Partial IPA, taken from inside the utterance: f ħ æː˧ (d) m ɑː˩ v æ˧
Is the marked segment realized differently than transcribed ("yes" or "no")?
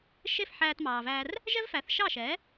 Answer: yes